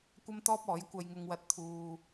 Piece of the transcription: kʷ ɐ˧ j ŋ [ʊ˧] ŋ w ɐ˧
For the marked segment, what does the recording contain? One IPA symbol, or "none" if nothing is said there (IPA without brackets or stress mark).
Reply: ʊ˧